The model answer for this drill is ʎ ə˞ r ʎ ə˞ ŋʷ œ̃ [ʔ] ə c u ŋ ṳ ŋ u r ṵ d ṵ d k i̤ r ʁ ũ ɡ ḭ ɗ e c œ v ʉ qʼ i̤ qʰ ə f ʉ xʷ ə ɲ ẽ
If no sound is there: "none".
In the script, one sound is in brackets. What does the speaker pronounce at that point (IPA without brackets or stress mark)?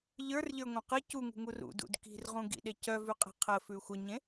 q